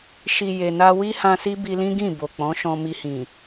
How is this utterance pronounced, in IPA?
ʃi˨ je˨na˧ wi˦hã˧si˦ bi˧lĩ˦ɡĩ˦˨ bo˨k͡pɔ̃˨˦ ʃɔ̃˧mi˧hĩ˨

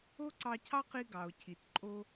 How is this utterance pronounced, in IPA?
o˥ǀɑ˧cʰɑ˥qi˧ ɡɑ˩o̯cʰi˩t ǃʼo˧

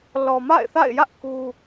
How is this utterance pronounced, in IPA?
lɔ˨ma̰˦˨ɪ̯θa̰˦˨ɪ̯jä˦ʔ ku˦

